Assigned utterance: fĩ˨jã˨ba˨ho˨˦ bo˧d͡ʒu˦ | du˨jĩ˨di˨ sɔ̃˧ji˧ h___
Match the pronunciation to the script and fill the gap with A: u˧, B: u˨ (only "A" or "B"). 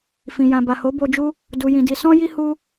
A